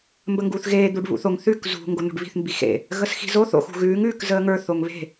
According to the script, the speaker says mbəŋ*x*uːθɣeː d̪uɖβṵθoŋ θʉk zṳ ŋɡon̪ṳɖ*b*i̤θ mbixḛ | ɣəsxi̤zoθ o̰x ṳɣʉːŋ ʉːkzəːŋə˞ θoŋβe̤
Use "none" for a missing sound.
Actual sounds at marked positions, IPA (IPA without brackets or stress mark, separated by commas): ɡ, β